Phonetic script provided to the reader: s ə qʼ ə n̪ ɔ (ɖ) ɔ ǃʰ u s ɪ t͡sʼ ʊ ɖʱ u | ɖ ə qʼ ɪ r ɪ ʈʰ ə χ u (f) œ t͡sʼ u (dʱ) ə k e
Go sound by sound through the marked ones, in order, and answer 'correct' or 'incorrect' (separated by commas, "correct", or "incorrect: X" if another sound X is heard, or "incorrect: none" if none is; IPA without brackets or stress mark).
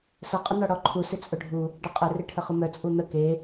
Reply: incorrect: ɽ, incorrect: m, incorrect: n̪